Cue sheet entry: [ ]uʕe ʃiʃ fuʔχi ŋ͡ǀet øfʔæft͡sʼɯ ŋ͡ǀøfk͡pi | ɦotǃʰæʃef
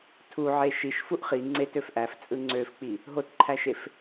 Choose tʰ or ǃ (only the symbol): tʰ